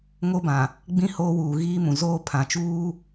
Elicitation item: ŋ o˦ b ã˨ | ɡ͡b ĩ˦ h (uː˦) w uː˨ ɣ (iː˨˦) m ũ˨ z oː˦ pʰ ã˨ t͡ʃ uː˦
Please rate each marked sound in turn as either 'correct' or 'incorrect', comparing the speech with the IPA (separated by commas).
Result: incorrect, incorrect